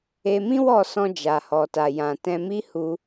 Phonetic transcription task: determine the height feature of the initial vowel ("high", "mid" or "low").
mid